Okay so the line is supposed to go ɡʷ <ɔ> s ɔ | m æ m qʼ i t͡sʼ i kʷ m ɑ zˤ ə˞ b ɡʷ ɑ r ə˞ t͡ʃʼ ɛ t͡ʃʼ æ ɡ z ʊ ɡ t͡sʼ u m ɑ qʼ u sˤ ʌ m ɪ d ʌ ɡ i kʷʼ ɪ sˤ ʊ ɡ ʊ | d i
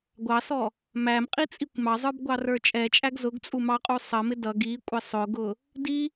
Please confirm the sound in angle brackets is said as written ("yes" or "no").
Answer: no